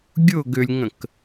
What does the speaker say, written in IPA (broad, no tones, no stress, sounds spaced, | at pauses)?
ɡʲ ʊ ɡ ʏ lʲ ŋ ə̃ k